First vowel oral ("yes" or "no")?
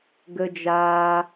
yes